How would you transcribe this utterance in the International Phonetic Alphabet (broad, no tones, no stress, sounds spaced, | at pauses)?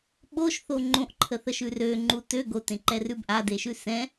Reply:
ɓ o ʃ θ o ŋ͡ǃ õ ʔ ǃʰ ə θ ə ʃ ʉ r ø ŋ͡ǃ u t ø ɡ o t ẽ ǃ ɛ r ʉ b ʔ a d e ʃ ʉ s ɛ̃